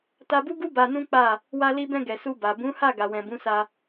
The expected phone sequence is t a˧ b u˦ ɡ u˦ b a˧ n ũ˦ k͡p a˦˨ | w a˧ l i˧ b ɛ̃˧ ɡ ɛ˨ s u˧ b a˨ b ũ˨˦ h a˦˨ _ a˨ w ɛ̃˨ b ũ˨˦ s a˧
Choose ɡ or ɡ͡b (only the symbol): ɡ